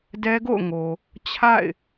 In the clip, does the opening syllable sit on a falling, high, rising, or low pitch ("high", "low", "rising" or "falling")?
high